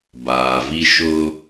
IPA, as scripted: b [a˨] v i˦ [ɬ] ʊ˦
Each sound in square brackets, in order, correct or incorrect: incorrect: aː˨, incorrect: ʃ

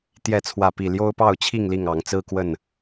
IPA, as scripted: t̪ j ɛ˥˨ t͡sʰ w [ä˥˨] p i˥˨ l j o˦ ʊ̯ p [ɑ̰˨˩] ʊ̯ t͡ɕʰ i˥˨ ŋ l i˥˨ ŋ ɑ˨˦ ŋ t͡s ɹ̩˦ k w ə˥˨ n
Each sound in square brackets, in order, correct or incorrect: correct, incorrect: ɑ˥˨

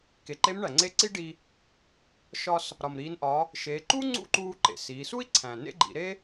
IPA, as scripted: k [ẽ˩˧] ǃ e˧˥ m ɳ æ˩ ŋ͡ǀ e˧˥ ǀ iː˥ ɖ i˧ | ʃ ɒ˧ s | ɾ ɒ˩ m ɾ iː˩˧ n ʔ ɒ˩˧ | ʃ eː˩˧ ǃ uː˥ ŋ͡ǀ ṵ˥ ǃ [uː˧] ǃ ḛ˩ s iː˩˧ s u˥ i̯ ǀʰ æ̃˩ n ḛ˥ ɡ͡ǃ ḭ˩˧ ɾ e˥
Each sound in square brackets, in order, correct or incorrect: incorrect: e˩˧, correct

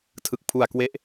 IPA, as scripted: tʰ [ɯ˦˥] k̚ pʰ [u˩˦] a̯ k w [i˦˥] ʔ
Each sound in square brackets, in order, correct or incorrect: incorrect: ɯ˨˩, incorrect: u˨˩, incorrect: e˦˥

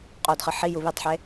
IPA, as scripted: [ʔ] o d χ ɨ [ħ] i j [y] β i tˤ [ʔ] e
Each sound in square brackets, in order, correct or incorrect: incorrect: qʼ, correct, incorrect: u, incorrect: ħ

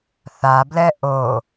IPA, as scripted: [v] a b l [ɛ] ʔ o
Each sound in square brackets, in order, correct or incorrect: incorrect: θ, correct

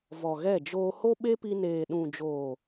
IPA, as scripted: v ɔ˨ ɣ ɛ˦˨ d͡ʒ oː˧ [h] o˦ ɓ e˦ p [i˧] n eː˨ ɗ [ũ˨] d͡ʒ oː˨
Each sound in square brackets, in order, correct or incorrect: correct, correct, correct

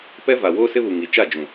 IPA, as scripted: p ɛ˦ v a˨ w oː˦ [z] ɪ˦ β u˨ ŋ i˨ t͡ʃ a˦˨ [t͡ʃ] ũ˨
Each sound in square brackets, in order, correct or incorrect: incorrect: s, incorrect: d͡ʒ

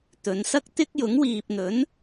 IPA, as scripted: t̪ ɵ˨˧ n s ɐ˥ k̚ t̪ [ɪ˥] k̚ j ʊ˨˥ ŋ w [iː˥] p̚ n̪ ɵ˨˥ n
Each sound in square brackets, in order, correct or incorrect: correct, incorrect: iː˨

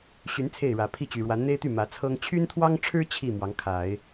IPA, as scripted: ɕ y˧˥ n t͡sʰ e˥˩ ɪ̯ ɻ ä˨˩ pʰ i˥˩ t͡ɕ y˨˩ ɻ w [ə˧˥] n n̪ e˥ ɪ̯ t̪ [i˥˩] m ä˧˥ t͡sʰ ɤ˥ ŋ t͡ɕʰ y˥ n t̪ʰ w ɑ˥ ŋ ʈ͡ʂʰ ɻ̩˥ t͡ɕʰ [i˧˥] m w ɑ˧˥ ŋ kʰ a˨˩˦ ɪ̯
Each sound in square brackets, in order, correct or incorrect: incorrect: a˧˥, incorrect: y˥˩, incorrect: i˥˩

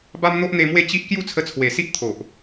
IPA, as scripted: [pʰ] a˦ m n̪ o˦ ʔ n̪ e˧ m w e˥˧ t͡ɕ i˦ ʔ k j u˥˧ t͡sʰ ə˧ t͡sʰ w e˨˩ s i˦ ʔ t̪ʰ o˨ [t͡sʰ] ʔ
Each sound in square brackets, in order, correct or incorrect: incorrect: b, incorrect: none

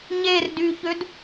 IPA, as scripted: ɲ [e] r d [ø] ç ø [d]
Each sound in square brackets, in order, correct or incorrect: correct, incorrect: y, correct

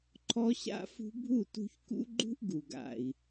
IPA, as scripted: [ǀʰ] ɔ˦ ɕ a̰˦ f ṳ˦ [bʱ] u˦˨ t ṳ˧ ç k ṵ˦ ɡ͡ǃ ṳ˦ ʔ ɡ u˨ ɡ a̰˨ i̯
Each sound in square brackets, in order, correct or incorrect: incorrect: ǃʰ, correct

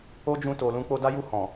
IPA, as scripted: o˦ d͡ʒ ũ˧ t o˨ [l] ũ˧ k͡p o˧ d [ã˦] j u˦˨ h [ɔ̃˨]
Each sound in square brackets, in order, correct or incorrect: correct, incorrect: a˦, correct

